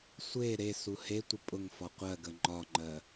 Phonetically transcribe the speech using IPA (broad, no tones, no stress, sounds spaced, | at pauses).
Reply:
sʷ e ɾ e s u h e tʷ ə pʼ ʊ ŋ f ɒ qʷ ɜ ɡ ə ŋ͡ǃ ɒ ŋ͡ǃ ɜ